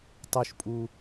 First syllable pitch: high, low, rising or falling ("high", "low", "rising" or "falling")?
low